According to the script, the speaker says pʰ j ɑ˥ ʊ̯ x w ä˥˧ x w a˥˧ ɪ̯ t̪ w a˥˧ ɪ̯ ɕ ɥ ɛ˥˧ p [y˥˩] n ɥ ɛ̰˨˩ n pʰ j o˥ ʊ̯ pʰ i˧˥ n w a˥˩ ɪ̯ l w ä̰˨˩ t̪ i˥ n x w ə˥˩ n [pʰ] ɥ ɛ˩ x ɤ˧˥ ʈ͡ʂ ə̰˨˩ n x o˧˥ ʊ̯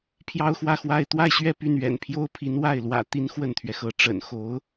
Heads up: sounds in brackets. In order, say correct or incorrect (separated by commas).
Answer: correct, incorrect